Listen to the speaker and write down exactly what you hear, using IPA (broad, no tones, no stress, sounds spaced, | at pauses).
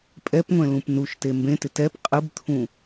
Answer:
pʼ ɛ p ŋʷ ɛ̃ l ũ p n u ʃ t e m b ẽ t ɪ t ɛ p qʼ ɯ b t̪ʰ ũ